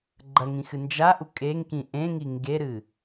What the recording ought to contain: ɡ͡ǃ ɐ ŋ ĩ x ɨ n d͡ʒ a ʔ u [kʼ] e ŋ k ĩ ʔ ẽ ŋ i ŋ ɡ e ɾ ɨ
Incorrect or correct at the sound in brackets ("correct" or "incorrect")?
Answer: correct